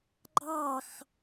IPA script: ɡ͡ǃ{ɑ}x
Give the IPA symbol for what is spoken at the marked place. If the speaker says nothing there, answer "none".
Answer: ɑ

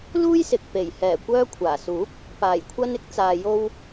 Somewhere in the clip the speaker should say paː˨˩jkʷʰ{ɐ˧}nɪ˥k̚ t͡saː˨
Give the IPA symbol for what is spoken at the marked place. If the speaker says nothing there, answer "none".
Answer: ɐ˧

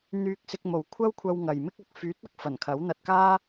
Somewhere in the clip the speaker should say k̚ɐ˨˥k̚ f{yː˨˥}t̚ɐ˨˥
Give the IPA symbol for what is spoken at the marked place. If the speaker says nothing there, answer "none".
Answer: yː˨˥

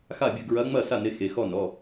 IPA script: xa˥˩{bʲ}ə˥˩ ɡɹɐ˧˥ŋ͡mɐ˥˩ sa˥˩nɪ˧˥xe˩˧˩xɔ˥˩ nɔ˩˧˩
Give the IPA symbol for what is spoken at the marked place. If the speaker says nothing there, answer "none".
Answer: bʲ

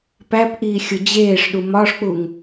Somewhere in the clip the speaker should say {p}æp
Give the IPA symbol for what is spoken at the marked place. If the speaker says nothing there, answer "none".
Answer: p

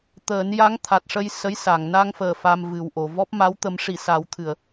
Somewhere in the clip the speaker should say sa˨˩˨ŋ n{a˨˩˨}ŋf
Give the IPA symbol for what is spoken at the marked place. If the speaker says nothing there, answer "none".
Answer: a˧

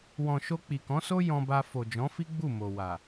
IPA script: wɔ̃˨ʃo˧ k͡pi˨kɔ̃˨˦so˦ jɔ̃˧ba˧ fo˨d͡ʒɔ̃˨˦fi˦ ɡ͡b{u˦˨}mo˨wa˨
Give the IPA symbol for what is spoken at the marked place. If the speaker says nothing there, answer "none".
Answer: u˦˨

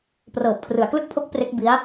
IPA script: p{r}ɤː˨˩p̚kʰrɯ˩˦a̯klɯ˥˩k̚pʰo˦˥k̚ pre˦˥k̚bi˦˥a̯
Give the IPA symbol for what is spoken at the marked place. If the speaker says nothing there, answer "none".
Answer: r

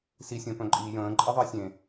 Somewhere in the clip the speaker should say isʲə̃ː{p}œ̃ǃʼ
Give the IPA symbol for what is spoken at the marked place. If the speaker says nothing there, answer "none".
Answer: p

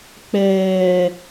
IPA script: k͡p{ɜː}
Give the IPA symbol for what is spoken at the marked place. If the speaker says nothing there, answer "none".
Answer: ɛː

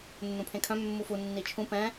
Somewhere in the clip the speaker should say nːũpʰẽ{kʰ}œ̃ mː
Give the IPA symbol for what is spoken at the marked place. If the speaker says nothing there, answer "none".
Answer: kʰ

